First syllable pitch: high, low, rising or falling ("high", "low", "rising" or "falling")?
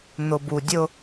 low